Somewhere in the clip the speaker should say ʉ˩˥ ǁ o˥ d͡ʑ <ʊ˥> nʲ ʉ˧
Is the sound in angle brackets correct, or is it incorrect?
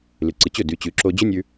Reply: incorrect: ɵ˥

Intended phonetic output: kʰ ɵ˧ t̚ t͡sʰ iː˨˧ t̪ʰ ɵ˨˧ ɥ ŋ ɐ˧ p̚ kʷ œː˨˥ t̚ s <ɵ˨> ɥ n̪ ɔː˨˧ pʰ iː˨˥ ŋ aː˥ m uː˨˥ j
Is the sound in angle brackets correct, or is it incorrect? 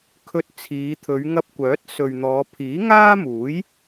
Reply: correct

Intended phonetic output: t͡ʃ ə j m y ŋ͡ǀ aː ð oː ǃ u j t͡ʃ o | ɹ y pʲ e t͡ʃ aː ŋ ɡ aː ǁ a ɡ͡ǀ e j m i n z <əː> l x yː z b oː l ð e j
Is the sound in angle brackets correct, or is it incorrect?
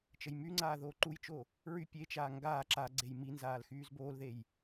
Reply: incorrect: aː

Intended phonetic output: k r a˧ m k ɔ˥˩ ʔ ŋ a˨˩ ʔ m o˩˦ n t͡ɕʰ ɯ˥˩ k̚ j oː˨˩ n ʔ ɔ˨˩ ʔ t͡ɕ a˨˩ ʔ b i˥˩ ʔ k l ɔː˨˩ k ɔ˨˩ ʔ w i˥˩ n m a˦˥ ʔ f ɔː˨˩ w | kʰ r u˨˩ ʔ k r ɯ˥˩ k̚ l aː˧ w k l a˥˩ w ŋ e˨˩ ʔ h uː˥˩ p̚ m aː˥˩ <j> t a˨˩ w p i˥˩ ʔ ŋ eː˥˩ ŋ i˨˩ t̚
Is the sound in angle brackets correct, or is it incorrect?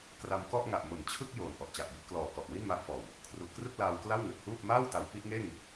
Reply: incorrect: w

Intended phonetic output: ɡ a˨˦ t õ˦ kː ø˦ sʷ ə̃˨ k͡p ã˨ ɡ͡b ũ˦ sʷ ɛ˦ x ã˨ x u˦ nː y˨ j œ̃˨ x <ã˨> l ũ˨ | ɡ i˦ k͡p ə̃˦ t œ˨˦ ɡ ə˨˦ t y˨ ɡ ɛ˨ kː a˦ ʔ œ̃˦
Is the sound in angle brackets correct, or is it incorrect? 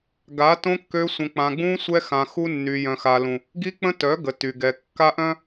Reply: incorrect: a˨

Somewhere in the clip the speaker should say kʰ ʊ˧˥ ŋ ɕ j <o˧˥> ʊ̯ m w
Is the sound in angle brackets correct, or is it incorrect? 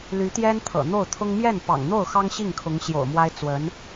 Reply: incorrect: o̰˨˩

